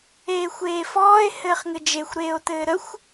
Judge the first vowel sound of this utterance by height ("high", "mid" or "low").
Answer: mid